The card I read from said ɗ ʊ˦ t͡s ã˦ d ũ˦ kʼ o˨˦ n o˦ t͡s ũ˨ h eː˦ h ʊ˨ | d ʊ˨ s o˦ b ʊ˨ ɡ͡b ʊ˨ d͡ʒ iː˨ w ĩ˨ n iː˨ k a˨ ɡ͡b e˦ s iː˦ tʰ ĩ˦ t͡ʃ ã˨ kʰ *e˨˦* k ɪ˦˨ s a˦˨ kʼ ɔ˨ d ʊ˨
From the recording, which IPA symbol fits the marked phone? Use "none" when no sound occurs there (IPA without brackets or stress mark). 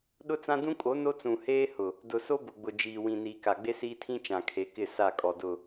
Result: e˨˦